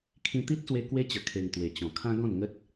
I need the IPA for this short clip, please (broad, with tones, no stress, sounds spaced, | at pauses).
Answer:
kʰ ĩ˧ t̪ i˦ t̚ s w e˧ k w e˦ t͡ɕ ə˨˩ kʰ e˨˩ ŋ t̪ w e˨˩ t͡ɕ ɔ̃˨˩ kʰ ã˦ ɡ ɔ̃˥˧ n ŋ ə˦ t̚